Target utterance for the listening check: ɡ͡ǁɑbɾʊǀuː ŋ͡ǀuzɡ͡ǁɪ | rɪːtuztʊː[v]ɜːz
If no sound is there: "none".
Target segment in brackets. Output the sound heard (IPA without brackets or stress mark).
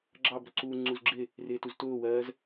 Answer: w